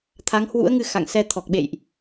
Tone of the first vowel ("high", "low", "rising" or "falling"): rising